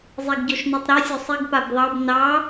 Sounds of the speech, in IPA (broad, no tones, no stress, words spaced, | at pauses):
zˤeɡɟɔʃnotˤɾu sʲosˤiɡ pabðˤɑb nɑ